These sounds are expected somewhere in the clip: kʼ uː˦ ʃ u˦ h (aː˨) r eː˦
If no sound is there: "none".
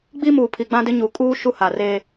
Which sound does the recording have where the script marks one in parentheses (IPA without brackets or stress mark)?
a˨